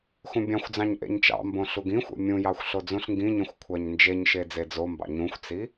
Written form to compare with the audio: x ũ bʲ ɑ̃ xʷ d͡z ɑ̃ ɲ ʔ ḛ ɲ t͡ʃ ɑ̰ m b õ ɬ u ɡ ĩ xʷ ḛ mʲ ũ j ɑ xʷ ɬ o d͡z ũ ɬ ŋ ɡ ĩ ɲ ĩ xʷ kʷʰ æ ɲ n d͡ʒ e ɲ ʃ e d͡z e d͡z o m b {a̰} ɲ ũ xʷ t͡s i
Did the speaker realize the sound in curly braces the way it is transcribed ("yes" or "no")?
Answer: no